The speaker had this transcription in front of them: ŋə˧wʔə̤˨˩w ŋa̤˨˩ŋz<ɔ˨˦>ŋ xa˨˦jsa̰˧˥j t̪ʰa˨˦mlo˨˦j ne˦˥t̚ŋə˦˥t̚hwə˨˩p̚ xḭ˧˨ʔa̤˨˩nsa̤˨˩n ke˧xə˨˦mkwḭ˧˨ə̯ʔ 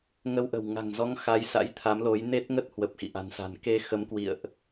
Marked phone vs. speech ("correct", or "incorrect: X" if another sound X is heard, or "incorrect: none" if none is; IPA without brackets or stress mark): correct